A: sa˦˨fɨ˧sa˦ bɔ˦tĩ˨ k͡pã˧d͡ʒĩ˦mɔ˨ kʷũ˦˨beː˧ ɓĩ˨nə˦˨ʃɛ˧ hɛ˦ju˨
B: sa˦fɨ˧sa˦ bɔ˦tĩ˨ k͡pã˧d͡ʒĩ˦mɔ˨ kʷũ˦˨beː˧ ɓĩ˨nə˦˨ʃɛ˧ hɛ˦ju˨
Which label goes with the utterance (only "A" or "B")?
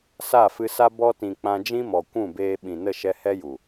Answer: A